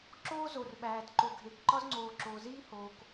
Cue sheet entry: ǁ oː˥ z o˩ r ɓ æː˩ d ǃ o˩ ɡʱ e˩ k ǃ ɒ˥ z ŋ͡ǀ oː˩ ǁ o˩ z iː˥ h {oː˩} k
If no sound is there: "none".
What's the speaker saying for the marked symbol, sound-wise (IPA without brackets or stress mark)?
oː˩